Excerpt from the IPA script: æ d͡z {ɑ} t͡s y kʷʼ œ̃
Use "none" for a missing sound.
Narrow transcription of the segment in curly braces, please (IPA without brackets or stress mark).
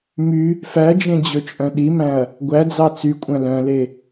ɑ